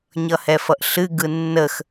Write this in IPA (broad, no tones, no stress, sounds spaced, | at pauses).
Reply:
ɲ ʌ h ɛ f ʌ ʔ ɬ ɨ ɡ ɯ nː ə x